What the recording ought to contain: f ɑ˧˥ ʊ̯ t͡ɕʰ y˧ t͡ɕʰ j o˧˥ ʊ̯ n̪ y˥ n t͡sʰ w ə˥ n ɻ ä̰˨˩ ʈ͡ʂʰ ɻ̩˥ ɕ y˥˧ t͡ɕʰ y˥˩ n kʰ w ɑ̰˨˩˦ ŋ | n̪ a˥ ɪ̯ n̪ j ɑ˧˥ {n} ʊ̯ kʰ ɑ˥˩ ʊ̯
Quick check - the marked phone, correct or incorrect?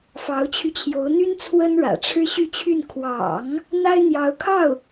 incorrect